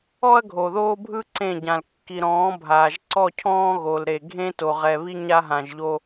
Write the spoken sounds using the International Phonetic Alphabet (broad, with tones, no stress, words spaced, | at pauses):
ɔ˦ɐ̯ɡʱo˨ðoː˦bʱɯ˦ ǀẽ˦˨ɟã˨l kːi˨ɾɔ̃ː˨˦bʱaː˨ʒ ǀɔ˦˨cʰɔ̃ː˦ ɣo˨l ɾe˨ɡʱẽ˦ to˨ʁɛ˨βi˦ ɲa˦ɦã˨ʒʎo˦